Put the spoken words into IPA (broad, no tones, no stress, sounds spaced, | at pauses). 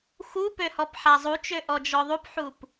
x u p ø h ɔ p ħ a zˤ u t͡ʃ ø ʔ ɔ d͡ʒ ɔ ðˤ u p ħ u p